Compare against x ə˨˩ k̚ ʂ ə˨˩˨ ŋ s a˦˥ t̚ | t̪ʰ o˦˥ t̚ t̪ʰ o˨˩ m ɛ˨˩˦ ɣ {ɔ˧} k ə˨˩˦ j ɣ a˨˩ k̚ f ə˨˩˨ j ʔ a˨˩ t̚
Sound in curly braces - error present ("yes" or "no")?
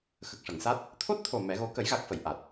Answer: yes